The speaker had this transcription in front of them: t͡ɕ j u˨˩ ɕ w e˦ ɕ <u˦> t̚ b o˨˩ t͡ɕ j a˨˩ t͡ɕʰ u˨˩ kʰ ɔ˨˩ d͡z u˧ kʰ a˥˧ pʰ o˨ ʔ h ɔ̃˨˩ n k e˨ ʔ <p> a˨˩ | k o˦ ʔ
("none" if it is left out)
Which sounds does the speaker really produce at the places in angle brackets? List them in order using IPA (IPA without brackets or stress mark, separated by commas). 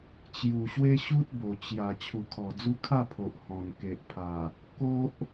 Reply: u˦, pʰ